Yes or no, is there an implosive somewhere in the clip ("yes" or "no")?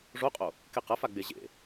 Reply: no